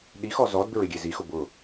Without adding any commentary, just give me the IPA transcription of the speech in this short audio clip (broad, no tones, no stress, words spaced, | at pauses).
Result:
ɗixɔ zɔd bɪɹɪɡʲe zixʊ bʊ